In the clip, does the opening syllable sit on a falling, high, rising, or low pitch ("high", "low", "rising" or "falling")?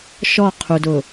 falling